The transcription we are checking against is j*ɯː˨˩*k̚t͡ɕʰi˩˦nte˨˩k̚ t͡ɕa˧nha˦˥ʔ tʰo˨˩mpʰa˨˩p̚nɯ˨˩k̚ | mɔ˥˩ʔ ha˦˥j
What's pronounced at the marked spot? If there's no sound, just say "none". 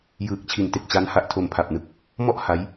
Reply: ɯː˨˩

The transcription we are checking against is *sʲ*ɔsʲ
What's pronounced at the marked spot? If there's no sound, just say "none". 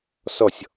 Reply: s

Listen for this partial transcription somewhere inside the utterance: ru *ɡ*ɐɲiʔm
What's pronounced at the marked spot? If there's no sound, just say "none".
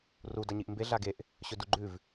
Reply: d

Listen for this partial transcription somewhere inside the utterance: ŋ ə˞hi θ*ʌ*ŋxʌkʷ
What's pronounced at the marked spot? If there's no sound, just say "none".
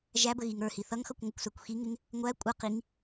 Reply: ʌ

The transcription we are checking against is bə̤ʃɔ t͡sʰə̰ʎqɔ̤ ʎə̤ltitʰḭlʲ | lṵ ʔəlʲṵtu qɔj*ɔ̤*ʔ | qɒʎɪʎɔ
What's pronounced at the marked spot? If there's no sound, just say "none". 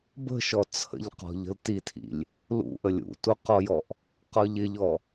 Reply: ɔ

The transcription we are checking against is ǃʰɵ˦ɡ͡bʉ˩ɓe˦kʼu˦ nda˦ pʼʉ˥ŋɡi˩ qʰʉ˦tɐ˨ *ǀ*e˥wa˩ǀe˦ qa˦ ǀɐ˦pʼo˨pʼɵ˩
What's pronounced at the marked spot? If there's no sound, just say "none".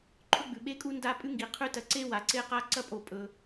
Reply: ǀ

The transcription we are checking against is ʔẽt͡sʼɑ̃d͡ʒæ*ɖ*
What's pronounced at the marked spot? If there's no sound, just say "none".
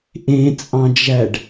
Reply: ɖ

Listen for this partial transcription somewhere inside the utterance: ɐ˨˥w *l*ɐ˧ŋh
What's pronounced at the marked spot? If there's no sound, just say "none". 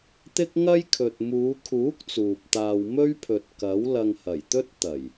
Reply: l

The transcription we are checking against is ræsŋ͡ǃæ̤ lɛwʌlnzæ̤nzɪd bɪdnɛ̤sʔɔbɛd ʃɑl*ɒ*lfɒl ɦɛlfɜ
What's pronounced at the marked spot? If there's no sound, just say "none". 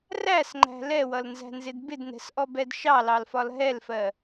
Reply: ɑ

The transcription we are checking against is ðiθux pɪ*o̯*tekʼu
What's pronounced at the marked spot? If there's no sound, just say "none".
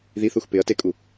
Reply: ɐ̯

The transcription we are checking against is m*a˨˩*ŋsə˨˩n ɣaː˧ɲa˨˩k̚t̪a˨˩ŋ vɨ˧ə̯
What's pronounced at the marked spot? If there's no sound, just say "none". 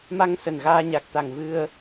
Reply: a˧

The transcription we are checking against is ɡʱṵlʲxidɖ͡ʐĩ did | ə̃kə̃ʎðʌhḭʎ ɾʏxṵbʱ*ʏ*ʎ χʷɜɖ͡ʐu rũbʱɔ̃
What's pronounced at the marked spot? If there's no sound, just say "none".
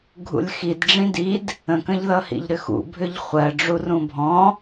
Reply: ʏ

